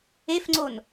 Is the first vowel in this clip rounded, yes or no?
no